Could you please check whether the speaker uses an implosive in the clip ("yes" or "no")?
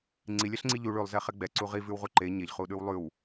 yes